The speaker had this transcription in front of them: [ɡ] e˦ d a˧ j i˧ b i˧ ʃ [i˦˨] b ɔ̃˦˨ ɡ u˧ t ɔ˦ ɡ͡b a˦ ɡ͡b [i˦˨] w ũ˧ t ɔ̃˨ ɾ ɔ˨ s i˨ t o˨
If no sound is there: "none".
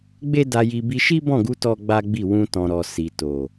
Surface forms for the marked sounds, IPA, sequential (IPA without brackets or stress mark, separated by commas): ɡ͡b, i˦, i˦˨